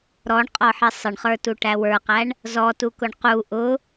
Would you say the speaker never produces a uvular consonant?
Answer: no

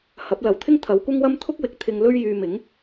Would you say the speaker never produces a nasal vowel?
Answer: yes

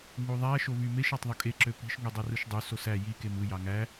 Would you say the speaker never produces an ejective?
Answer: no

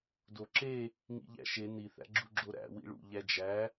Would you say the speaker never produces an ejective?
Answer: yes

